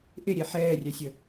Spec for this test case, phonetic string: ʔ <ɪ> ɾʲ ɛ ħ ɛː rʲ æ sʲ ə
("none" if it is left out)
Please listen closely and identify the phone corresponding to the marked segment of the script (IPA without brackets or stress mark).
ɪ